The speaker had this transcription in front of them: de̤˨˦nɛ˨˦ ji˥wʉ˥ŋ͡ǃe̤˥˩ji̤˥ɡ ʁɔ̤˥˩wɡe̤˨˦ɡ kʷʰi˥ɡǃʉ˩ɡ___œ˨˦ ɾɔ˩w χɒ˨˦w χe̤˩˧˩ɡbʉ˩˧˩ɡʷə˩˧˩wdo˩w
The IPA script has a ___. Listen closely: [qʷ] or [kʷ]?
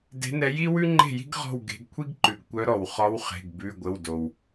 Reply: kʷ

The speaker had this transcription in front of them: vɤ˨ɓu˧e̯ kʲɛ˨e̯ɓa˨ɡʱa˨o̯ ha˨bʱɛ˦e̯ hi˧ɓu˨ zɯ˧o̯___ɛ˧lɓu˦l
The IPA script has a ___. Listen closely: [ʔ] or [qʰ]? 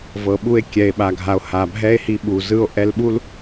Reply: ʔ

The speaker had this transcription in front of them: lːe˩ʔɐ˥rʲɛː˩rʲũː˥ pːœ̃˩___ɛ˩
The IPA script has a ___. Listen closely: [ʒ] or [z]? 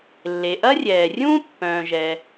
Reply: ʒ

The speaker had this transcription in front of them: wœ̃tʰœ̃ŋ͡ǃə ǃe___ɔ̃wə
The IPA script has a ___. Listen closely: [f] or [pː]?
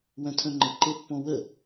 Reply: pː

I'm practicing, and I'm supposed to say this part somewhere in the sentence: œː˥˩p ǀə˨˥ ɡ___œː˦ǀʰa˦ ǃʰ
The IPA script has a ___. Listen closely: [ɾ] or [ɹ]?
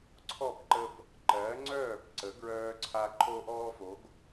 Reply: ɹ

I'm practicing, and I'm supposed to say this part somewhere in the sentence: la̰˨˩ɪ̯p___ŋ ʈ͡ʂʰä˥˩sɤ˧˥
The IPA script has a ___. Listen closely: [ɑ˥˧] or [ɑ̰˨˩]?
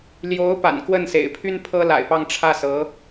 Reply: ɑ˥˧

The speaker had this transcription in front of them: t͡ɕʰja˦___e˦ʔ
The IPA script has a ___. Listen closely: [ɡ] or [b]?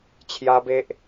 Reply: b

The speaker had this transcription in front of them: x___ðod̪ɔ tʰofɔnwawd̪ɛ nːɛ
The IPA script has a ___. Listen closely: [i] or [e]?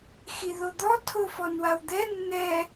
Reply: i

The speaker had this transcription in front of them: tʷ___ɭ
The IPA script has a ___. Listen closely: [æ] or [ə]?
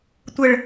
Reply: ə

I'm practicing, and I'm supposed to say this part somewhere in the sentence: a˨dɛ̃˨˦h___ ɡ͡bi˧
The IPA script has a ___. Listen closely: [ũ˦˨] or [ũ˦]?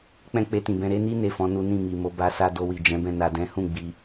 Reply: ũ˦˨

